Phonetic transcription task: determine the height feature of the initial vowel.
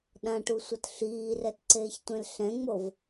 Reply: low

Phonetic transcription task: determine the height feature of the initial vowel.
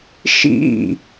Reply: high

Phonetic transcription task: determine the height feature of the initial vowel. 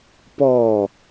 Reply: mid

